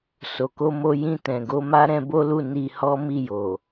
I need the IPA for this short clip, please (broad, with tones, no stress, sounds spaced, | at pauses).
s o˨ k o˧ m o˧ j ĩ˧ t ɛ̃˨ ɡ o˨˦ m a˦ ɾ ɛ̃˧ b o˦ l u˦˨ n i˧ h ɔ˦ m i˦˨ j o˨